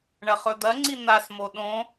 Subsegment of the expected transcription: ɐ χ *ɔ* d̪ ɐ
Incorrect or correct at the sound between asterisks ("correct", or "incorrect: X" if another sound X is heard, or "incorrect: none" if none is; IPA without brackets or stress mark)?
incorrect: ɵ